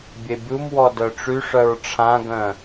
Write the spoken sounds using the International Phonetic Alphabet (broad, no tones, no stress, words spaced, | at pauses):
bʲebʲumwɔ dœʈ͡ʂyʂœɹ ʈ͡ʂʰãɡœ̃